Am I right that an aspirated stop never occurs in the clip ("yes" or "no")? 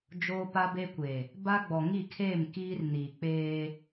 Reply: no